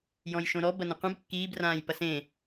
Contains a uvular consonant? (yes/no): yes